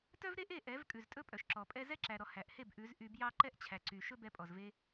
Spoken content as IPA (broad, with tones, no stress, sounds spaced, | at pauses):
t œ˦ v ɾ e˦ ʔ e˦˨ ʔ ɛ˨˦ v kʼ ʉ˨ z tʼ ɵ˦ pʼ œ˨ ʃ ǁ ɔ˨ pʼ ɛ˦ z ɛ˦ ǁ æ˨ ɾ ɔ˨ h æ˨ ʔ h e˦˨ b ʔ ʉ˨˦ z ʔ y˧ b j ɑ˦ ǃ ɛ˦ ʔ t͡ɕʰ æ˨ ǀ y˨ ʃ ɵ˦ b ɛ˧ pʼ ɔ˨ z v e˧